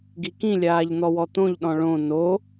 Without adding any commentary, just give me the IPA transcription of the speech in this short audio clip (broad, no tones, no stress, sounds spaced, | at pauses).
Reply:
ɡ i k ĩ lʲ aː ʎ n̪ ɔ w ɔ t̪ õ ʎ ɗ ɔ̃ ɭ õ n o